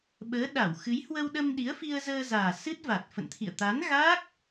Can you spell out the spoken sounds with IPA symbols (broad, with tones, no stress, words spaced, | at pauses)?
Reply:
ɓəː˨˦ ɗa˧˩wxɨ˨˦jhwə˧wɗə˧m ɗi˨˦ə̯fi˧ə̯zəː˧zaː˨˩ sɨ˦˥t̚va˨˩t̚fə̰˧˨nt̪ʰḭ˧˨ə̯ t̪a˨˦nɣa˦˥k̚